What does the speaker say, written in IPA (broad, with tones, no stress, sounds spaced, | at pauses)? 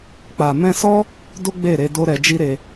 k͡p a˨ m ɛ̃˧ s ɔ˦ | d o˦ ɡ͡b e˦˨ ɾ e˧ d o˦ ɾ ɛ˧ d͡ʒ i˦ ɾ e˧